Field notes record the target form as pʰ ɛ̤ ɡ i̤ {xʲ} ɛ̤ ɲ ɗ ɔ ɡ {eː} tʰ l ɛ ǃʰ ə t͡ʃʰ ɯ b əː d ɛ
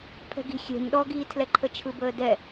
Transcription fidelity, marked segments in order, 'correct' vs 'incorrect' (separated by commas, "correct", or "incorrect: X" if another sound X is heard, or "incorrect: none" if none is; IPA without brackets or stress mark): correct, incorrect: iː